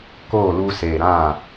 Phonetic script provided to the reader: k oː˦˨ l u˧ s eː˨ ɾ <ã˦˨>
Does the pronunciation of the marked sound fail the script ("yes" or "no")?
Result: no